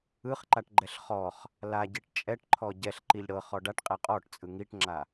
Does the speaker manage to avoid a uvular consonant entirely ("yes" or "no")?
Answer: no